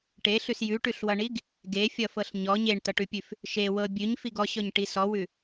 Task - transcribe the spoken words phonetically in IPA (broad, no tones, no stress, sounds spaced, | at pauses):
ʈ e ɬ ʉ s j ʉ ʈ ʉ ɬ w ʌ ɳ i ɡ | ɡ e fʲ ʌ f ɤ ɬ ɲ ɔ ɲ e ɳ t ʌ ʈ ʉ pʲ ʉ f | ʃ e w ɤ bʲ ʉ ɲ f i ɡ ɔ ɕ ɔ ɲ ʈ i s ɔ w ʉ